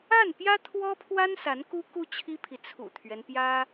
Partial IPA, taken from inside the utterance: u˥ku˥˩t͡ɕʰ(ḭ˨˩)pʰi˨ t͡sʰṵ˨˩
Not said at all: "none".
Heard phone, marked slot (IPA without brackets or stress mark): i˥